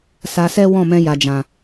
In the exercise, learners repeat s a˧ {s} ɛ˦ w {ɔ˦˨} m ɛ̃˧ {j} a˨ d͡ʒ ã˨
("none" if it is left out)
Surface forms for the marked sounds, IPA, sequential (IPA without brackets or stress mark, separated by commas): s, ɔ̃˦˨, j